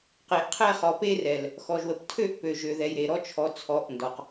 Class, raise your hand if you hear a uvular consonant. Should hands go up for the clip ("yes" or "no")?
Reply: yes